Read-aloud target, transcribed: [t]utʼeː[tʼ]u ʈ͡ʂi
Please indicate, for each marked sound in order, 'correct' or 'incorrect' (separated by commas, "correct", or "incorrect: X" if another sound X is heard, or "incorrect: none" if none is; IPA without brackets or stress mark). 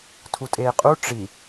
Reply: incorrect: tʰ, incorrect: qʼ